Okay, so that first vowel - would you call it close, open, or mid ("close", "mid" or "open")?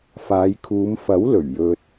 open